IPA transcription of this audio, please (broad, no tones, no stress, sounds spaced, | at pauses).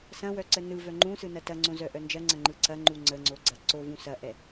s ɐ̃ w œ ǀ ə n ɯ v œ ŋ͡ǃ ũ s ɯ n ɐ t ɐ ŋ͡ǀ õ z œ ʔ œ n d͡ʒ ɐ ŋ͡ǀ ɐ̃ ŋ͡ǃ ɯ ǀ ɐ ŋ͡ǃ u ŋ͡ǀ ə ŋ͡ǀ o ɡ͡ǀ ɐ ǀ o v ũ s ɐ ʔ ɛ